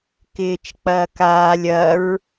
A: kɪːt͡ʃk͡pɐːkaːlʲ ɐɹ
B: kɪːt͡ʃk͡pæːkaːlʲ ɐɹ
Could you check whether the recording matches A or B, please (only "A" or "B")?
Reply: A